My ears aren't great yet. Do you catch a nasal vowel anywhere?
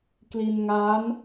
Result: no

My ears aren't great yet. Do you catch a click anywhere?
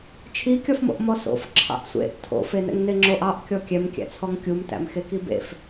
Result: yes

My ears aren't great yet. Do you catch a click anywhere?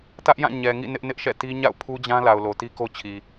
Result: no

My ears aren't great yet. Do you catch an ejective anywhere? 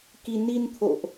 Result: no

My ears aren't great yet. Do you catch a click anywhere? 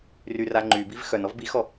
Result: yes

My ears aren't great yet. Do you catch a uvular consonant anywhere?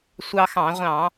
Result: yes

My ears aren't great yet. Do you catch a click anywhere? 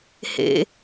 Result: no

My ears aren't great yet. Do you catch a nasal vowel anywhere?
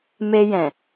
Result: yes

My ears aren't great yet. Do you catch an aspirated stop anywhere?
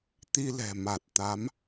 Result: no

